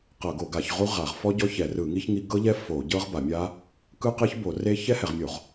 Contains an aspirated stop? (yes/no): no